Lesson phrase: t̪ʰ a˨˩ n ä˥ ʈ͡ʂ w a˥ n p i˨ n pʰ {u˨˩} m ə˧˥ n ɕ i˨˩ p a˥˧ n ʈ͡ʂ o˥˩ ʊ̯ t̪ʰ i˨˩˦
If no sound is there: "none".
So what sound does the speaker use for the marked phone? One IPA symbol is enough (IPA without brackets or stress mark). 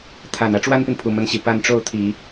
u˨˩